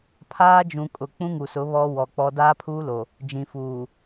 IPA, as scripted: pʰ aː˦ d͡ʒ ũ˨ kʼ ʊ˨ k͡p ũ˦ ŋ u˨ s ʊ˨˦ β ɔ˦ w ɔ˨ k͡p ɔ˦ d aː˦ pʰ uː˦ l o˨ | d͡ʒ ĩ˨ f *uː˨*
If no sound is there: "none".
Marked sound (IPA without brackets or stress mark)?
uː˨